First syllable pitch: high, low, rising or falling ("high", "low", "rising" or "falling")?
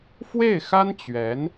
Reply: falling